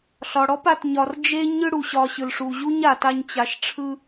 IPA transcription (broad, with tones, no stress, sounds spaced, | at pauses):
ɬ ɒ˩ ɽ ɔ˦ p a˨ t ɲ ɒ˨ r d͡ʒ e˥ ɲ ɯ˦ ɽ u˩ ɕ ɒ˨ ɕ ɯ˩ l ʂ u˨ ʑ u˥ ɲ a˨ t a˦ ɲ t͡ɕ a˨ ʃ ʈ͡ʂʰ ɯ˦